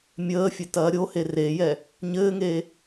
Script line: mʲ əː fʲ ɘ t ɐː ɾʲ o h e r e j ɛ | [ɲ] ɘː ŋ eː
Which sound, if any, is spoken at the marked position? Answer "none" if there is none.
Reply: ɲ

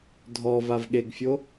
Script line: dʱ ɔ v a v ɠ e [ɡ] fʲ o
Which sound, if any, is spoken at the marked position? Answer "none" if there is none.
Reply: ɡ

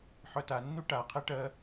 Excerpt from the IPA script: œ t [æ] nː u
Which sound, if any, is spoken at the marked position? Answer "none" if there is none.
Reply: a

